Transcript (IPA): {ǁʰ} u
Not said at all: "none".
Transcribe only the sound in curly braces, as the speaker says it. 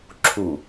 ǁʰ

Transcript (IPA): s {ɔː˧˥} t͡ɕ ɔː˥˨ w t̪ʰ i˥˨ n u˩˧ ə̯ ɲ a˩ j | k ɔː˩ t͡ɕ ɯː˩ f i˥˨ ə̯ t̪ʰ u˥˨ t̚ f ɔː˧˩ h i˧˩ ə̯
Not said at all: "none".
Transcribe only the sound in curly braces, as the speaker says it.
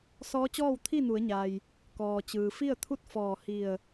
ɔː˧˥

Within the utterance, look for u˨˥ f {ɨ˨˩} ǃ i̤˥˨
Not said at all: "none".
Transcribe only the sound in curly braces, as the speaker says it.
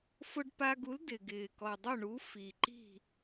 i˨˩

